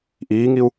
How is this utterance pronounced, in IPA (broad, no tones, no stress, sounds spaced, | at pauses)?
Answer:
ʔ iː ŋ i u̯